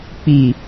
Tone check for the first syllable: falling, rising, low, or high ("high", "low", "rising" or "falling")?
low